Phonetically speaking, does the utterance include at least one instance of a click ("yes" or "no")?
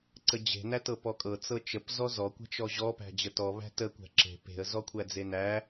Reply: yes